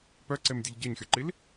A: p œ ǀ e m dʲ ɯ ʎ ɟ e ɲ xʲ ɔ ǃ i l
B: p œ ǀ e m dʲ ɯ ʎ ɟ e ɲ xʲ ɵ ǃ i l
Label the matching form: A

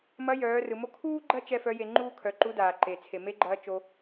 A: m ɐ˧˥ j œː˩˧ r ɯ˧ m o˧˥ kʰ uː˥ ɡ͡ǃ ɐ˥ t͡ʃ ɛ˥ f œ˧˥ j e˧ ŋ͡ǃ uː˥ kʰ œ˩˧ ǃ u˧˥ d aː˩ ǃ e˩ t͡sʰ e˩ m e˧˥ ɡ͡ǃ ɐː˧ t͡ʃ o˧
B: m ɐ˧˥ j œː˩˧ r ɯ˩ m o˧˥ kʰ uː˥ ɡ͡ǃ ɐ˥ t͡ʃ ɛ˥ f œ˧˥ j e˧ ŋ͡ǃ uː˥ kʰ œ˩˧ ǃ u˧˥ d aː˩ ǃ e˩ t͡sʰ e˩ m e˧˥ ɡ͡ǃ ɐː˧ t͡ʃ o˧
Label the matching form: B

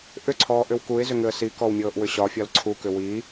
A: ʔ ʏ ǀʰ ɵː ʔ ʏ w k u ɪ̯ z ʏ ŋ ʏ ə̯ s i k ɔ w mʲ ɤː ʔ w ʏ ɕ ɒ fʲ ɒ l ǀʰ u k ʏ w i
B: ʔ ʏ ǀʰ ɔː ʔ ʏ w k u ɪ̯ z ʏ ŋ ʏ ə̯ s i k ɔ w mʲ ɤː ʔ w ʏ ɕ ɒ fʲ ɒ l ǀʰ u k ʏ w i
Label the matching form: B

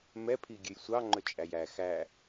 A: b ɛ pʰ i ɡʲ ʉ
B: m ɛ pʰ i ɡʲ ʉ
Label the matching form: B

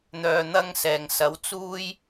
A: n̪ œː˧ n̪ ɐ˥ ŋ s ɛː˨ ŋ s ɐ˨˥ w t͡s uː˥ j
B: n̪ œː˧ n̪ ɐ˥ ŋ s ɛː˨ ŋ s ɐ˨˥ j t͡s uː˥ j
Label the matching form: A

